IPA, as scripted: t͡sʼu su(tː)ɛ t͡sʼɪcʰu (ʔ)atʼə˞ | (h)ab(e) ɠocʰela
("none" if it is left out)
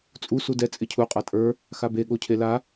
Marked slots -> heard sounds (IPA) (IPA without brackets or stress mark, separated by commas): d, qʼ, x, e